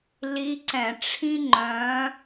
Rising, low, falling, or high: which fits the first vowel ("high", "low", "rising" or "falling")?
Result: rising